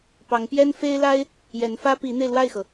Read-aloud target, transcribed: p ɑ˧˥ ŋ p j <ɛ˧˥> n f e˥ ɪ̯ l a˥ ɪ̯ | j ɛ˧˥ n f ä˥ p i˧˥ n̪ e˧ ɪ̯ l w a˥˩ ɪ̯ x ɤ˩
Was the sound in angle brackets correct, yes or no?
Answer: no